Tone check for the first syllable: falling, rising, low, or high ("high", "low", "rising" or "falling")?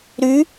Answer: rising